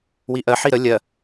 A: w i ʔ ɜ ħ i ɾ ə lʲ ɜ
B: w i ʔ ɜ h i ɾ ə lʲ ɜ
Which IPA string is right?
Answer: A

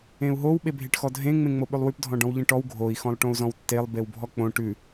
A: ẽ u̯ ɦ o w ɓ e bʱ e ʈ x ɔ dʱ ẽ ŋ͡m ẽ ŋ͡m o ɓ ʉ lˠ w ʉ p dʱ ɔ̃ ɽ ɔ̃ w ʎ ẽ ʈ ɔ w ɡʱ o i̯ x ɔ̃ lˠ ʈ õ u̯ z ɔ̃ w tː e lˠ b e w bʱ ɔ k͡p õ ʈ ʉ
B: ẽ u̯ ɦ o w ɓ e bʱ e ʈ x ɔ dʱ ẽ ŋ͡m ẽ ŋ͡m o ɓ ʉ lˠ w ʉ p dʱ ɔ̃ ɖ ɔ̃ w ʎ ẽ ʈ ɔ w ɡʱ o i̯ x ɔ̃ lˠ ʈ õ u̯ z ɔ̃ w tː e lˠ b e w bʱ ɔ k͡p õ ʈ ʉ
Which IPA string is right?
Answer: B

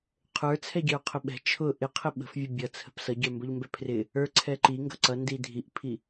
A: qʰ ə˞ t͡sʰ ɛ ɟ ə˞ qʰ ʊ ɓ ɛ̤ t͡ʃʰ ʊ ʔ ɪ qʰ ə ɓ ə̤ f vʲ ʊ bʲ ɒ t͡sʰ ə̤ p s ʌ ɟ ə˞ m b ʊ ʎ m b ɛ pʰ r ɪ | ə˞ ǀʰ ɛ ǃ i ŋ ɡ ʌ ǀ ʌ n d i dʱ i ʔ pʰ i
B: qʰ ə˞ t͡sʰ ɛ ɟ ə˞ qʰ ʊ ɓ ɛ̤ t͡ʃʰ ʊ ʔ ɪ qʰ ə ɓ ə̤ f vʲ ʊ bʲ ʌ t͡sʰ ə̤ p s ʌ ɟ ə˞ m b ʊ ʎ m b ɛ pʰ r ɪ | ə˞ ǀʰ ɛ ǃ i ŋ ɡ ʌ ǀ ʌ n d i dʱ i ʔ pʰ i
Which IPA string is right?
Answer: B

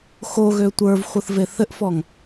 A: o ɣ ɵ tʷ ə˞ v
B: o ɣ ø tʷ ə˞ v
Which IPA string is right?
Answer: B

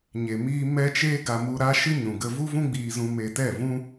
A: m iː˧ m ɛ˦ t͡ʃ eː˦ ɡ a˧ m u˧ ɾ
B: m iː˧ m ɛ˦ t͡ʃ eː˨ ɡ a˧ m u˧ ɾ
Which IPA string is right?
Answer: A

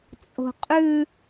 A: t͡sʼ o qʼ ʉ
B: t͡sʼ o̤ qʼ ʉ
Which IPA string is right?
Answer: B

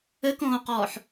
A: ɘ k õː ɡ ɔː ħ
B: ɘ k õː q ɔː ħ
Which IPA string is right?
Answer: B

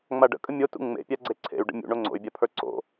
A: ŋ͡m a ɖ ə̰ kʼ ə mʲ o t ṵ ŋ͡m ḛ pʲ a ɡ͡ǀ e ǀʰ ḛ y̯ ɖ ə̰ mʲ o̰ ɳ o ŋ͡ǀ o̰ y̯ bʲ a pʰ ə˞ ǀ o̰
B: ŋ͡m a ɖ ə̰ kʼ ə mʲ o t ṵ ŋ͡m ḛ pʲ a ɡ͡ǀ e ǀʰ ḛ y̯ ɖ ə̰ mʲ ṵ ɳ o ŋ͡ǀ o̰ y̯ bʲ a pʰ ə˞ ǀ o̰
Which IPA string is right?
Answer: B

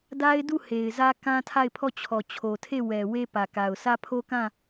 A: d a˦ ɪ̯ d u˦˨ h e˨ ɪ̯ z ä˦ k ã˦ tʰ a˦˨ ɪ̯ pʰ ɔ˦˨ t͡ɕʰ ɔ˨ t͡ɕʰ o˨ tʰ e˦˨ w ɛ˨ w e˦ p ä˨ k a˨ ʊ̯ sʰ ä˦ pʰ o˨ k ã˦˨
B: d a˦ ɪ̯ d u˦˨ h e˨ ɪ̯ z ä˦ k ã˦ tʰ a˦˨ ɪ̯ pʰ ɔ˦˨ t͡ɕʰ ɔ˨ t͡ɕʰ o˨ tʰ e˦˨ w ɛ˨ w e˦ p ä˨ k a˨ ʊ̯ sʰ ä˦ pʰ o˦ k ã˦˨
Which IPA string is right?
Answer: B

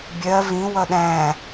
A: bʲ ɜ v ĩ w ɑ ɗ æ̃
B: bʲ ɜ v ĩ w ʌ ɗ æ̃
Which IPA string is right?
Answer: B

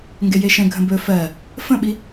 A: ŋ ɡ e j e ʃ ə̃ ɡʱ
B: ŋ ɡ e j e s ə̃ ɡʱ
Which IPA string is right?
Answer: A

